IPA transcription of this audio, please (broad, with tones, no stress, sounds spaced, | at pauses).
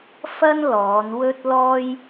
f ɐ˥ n l ɔː˨˧ n w ɵ˥ t̚ l ɔː˥ j